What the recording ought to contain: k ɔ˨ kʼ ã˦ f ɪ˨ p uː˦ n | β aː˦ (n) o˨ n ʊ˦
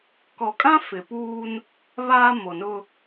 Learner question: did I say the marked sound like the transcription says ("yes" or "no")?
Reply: no